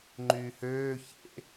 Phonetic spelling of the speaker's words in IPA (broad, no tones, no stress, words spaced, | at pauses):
ŋ͡ǃyːhøː çḛ